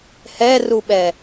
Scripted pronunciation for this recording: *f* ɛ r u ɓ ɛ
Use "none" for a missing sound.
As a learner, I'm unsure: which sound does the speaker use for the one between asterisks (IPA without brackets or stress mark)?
h